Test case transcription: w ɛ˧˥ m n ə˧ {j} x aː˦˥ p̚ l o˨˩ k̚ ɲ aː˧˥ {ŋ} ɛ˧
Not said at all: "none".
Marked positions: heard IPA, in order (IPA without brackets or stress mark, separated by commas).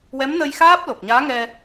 j, ŋ